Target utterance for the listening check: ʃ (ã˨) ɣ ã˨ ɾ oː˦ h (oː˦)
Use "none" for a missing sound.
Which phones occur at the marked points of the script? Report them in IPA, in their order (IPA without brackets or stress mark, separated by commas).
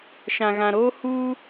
ã˨, uː˦